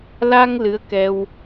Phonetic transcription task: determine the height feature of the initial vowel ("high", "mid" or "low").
low